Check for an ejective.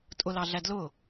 present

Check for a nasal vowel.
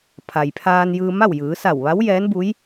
absent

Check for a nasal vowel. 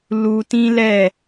present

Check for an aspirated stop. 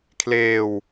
present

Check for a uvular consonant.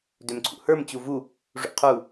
present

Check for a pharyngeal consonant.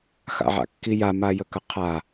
present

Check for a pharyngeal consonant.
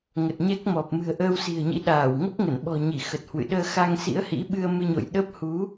absent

